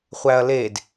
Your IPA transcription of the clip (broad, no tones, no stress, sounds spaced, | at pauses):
χʷ æ ɐ̯ l e d